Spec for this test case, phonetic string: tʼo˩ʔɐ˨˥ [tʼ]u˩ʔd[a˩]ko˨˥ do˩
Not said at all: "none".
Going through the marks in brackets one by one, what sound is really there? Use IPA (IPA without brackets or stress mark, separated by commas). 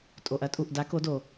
tʼ, a˨˥